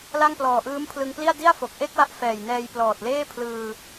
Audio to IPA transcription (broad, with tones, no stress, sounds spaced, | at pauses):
l a˥˩ ŋ p l ɔː˨˩ ʔ ɯː˦˥ m pʰ l ɯ˧ ŋ p l i˥˩ a̯ d i˥˩ a̯ f o˨˩ k̚ ʔ e˥˩ k̚ w a˥˩ ʔ f ɛː˨˩ j n ɛː˧ j p l ɔː˨˩ t̚ l eː˥˩ pʰ l ɯː˧